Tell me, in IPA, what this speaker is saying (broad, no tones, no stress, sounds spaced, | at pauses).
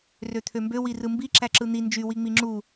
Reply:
r ø t̪ʰ ø m b ø w i r ɯ m b i ǁ æ ǁ ɯ n̪ i n d͡ʒ y w i ŋ͡m i ŋ͡ǁ u